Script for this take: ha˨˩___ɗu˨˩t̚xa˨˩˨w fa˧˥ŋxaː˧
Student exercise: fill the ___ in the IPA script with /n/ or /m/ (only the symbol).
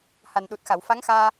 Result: n